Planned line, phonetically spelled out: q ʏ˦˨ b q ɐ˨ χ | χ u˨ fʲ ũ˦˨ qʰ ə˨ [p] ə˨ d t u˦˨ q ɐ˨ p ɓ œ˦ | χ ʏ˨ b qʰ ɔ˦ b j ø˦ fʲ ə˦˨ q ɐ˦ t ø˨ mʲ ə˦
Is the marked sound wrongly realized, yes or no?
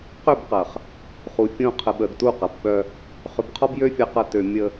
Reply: yes